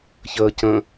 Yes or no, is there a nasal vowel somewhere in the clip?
yes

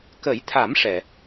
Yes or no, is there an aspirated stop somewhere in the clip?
yes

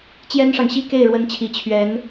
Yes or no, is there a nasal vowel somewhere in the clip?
no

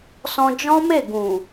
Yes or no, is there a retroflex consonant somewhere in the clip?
no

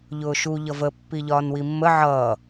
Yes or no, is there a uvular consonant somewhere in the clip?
no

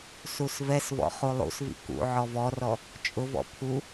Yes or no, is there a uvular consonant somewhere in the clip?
yes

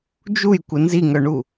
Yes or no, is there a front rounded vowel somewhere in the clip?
yes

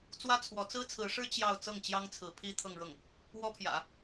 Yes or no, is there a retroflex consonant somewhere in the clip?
yes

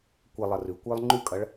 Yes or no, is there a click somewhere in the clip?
yes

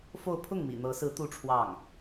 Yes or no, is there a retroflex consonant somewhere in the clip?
yes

